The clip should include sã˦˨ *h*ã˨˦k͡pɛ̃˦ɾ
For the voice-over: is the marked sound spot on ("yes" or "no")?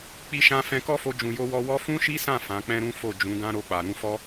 no